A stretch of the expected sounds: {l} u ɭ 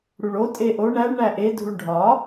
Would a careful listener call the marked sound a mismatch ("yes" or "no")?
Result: yes